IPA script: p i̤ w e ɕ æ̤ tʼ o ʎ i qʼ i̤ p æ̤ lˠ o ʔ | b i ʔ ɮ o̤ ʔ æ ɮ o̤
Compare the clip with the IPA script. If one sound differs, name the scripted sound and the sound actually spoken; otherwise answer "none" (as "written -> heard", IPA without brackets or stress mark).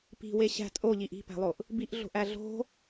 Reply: qʼ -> ʔ